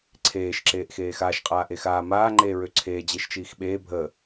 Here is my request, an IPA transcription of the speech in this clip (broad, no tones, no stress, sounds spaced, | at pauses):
ǀʰ eː ʃ ǁ eː ʔ x eː x a ʃ qʼ aː ʔ e x aː m aː ŋ͡ǃ eː ɹ ø ǀʰ eː d͡ʑ e ʃ t͡ʃ iː x ɓ eː bʱ əː